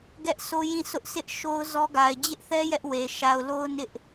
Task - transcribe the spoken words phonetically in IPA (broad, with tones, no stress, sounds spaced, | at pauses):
ɡ ɛ˦ ʔ s o˦ j ĩ˦˨ s ʊ˦ ʔ sʰ ɪ˦ ʔ ʃ o˦ ʊ̯ z ɔ˦ ɡ a˨ ɪ̯ d͡ʑ ɪ˦ ʔ θ ɛ˦ j ɛ˦ ʔ w e˨ ʃ a˨ ʊ̯ l o˦ ʊ̯ n ɪ˦ ʔ